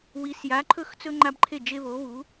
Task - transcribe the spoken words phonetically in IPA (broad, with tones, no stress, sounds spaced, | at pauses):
w i˨˥ s j a˨˥ ǃʰ ɵ˥˩ x t͡s ɵ˦ ŋ͡ǃ a˦ b ǃʰ e˥˩ d͡ʒ e˦ β o˨˥ β u˨˥